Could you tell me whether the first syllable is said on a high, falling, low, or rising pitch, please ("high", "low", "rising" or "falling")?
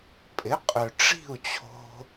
rising